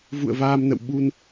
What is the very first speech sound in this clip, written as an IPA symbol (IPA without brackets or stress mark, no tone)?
v